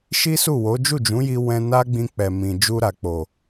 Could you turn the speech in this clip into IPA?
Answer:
ʃi˦su˦˨wo˨˦ d͡ʒu˦˨d͡ʒũ˨˦ji˧ wɛ̃˧na˦ɡ͡bĩ˧ k͡pɛ˨ mĩ˨d͡ʒu˧ ɾa˨k͡po˨

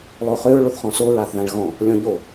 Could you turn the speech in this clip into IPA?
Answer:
lˠoχøɹ ɭoθχɔ̃so ɹaθðãɭɣɔ̃ | lʲɔ̃ʎo

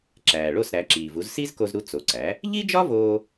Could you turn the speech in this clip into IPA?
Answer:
ǁæː˩ɭo˥˩s ɾæ˩˥ǁiː˩vu˩˥z si˥zko˧zɾu˧ t͡so˩˥ǀæ˩˥ | ʎi˥d͡ʒɒ˥voː˧

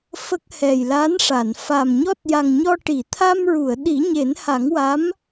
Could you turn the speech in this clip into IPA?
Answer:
fə˦˥k̚ hɛ˨˩jla˧˥nʂa˨˩˨n fa˨˩mɲɔ˦˥t̚ ja˨˩ŋɲɔ˧ʈi˨˩˨ t̪ʰa˧mɹu˨˩˨ə̯ ɗi˨˩˦ɲe˨˩˦nha˨˩˦ŋwa˧˥m

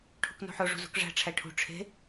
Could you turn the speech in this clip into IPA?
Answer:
ʈʰṳknṳħo ʐṳzṳkʐæ̤ ʈ͡ʂʰæʈʰṳ ʈ͡ʂʰe̤

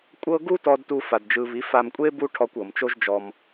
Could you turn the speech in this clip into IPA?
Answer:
kʷʼɤ˦ ɡu˦tɔ˧d tu˦fa˧dd͡ʒɯ˧ βi˨˦fa˧mkʷʼe˦ bu˦ʈʰɔ˧kʷ ɤ˨mt͡ʃo˦ʒd͡ʒɔ˧m

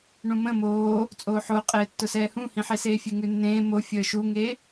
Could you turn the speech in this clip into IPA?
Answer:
ɳũmə̃ moː | t͡sʼoːħoqʼeːtːʊ sɛːhũhĩħe seːfʲeŋʉnːẽː mo fʲəːʃuŋe

